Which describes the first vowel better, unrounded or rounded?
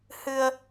unrounded